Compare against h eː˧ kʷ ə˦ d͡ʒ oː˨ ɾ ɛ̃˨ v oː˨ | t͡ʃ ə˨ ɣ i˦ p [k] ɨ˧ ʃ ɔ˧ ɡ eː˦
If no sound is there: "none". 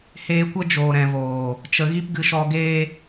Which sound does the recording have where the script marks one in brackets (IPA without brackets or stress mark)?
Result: ɡ